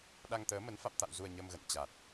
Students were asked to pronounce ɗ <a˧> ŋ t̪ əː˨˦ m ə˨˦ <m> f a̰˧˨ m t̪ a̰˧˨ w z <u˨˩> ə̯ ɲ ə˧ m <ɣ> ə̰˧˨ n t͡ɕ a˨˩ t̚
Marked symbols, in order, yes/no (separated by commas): yes, no, yes, yes